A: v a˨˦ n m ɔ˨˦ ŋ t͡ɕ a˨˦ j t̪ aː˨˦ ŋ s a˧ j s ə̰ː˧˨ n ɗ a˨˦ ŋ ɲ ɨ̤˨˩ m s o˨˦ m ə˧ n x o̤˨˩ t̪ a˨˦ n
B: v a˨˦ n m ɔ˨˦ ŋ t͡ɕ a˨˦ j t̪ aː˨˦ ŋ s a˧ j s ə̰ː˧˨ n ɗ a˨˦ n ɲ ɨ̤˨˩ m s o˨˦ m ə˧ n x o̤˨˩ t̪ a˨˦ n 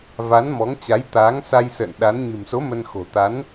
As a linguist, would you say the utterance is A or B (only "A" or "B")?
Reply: B